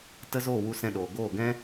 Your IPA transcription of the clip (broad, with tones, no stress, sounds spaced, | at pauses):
t ə˦ z o˦˨ w u˧ s ɛ̃˧ ɗ oː˨ ɡ oː˦˨ ɡ ɛ̃˦